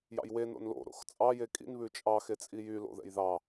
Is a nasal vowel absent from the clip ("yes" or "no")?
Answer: yes